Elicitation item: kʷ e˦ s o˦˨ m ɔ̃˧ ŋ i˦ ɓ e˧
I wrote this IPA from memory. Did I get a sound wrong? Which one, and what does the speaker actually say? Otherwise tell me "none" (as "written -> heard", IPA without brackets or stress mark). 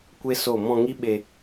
none